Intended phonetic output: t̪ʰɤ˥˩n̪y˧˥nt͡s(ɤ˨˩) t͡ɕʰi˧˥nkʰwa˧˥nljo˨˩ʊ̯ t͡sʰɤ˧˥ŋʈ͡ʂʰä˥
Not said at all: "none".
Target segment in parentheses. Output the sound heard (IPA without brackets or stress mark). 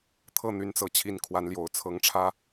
ɤ˨˩